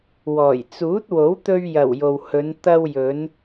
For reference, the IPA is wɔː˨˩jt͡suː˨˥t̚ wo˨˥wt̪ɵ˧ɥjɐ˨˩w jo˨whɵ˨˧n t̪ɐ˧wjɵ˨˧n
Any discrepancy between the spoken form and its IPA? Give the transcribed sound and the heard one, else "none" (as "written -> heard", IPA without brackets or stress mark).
none